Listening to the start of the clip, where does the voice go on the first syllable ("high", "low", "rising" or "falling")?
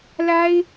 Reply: high